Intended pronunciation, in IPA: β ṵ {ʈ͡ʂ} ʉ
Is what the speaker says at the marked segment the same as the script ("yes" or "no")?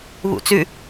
no